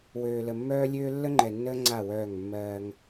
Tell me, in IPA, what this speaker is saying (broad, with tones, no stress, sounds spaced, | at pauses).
w øː˨ l ə˨ mː œː˦ lʲ øː˦ lː ə˦ ŋ͡ǃ ɛ˨ nː əː˦ ŋ͡ǀ a˦˨ w œː˦˨ ŋ mː ɜː˦ ŋ